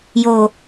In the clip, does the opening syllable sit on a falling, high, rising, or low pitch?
low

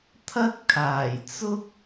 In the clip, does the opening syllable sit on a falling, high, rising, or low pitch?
high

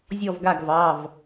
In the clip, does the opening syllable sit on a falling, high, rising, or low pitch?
falling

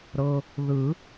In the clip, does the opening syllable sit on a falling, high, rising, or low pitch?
low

